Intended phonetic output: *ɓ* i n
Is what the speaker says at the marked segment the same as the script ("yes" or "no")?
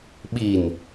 yes